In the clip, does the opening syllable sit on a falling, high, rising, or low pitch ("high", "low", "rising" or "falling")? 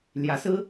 rising